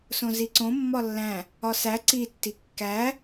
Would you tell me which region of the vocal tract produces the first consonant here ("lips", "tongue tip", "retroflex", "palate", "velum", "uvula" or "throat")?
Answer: tongue tip